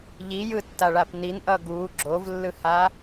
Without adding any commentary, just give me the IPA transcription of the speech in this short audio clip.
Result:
ʎijɯtːaɭap ninʔʌ ɡu ɡ͡ǁovlːɯha

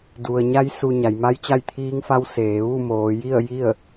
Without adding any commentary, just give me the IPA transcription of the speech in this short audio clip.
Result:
du˩ə̯ɲa˧˥j su˧ ɲa˩˧j ma˧˥jt͡ɕa˥˨jt̪ʰiː˧˥ŋfa˧˥w seː˩˧ ʋu˥˨moː˩˧ ji˥˨ə̯ ji˥˨ə̯

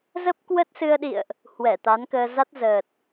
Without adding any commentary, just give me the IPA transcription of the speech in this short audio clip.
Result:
zə˦˥p̚ kwə˦˥t̚sɨ˧ə̯ɗḭ˧˨ə̯ʔ | hwɛ˧˩t̪a˨˦nkəː˧ za˦˥t̚zəː˨˩t̚

